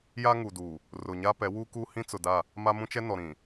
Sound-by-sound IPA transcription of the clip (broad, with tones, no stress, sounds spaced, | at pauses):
j a˦ ŋ u˨ d uː˨ | r ʊ˨ ɲ a˦ p ɛ˨˦ w uː˦ k uː˦ h ĩ˦ t͡s ʊ˨ d a˦˨ | m a˦ m ũ˦ t͡ʃ ɛ˦ n ɔ˨ ɾ ĩ˨